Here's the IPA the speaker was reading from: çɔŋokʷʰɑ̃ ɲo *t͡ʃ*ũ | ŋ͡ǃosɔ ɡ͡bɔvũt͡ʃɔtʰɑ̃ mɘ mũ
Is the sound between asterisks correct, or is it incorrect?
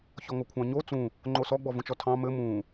incorrect